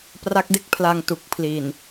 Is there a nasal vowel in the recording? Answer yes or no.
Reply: no